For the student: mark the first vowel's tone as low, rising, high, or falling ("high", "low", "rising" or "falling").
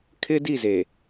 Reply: high